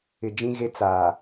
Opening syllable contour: low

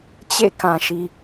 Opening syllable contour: falling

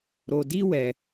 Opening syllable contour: low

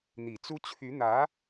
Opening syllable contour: low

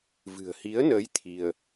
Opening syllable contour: low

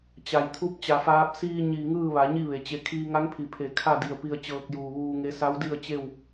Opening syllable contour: low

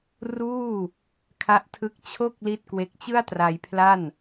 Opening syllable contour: falling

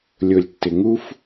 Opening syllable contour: low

